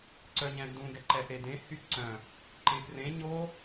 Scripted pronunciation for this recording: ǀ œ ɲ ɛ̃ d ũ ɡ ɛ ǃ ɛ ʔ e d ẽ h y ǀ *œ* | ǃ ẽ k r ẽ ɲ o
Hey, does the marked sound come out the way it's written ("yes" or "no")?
no